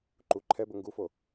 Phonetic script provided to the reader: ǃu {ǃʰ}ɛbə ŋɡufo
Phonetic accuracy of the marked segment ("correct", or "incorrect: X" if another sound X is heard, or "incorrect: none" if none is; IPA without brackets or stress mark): correct